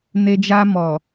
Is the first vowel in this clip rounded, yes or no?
no